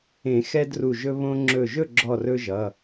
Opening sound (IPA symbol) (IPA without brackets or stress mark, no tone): ẽ